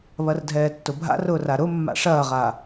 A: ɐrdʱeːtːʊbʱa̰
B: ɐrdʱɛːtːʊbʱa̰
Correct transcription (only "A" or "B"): B